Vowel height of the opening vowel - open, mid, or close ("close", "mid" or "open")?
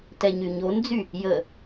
mid